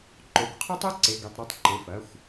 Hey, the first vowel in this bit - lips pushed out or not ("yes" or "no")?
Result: yes